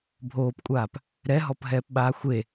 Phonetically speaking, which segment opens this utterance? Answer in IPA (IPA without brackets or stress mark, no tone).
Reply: bʱ